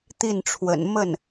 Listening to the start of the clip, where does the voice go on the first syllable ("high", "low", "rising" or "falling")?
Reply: falling